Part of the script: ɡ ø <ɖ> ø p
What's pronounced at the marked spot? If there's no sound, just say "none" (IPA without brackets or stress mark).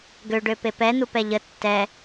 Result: ɖ